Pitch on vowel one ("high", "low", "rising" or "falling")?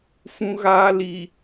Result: high